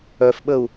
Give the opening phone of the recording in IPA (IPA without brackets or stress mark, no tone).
œ